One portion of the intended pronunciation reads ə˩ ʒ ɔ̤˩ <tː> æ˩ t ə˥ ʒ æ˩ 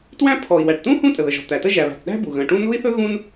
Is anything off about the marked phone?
yes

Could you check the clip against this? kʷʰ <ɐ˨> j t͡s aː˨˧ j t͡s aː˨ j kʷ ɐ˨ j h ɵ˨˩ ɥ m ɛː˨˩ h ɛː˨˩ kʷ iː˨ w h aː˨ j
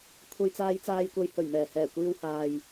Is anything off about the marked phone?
no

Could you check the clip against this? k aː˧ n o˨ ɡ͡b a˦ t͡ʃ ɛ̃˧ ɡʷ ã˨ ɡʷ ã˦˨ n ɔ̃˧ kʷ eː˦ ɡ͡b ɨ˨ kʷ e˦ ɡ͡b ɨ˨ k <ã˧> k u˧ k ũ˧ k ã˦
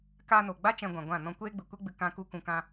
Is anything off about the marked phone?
no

